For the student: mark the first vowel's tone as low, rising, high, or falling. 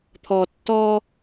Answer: low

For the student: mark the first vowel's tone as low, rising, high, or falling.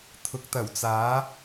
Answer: rising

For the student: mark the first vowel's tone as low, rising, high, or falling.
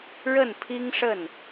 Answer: falling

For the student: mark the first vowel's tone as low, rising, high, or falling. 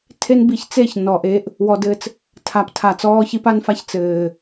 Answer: high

